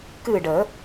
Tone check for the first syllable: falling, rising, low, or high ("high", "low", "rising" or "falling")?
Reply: falling